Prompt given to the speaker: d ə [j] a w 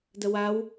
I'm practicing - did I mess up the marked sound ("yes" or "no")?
yes